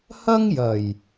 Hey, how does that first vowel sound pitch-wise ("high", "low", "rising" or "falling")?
high